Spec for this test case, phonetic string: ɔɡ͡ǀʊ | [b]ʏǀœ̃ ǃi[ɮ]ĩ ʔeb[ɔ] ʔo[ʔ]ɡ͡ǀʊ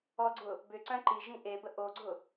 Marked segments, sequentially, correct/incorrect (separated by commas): correct, incorrect, incorrect, incorrect